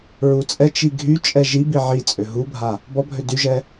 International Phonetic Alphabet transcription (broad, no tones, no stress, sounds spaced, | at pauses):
ɹ u t͡sʼ ɛ t͡ʃ i ɡʱ y t͡ʃʼ ɛ ʒ i b i ʕ i t͡sʼ ø ɦ u bʱ a | b ɔ bʱ ø d y ʒ ɛ